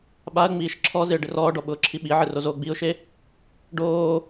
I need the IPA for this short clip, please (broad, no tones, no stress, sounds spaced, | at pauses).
ɓ a ə̯ ŋ͡m iː ʃ ǁʰ ɔ z ɪ ə̯ ɖ ɪ r ɔː ɖ ɔ ɓ ʊː ǁʰ i ɓ i ʕ ɪ r o z oː ɡ͡b i ʊ̯ ʃ e | ɖ oː